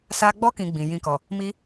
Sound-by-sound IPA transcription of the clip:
s a˧ ɡ͡b ɔ˦ k ĩ˧ ɡ͡b ĩ˨ j ĩ˧ k ɔ˨ | m i˦

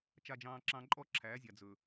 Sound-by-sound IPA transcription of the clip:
t͡ʃ a˦ d͡ʒ ɑ̃ː˦ ǁ ɑ̃˦ ǃʼ ɔ˦ ǁʰ æː˨˦ zʲ a˨ d͡z ɵ˨

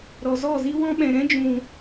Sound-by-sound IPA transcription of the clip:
ɾ ɔ˨ z ɔ˦˨ z i˦ w ɔ̃˦ ɓ ɛ̃˨ ɾ ɛ̃˦ d͡ʒ ũ˨

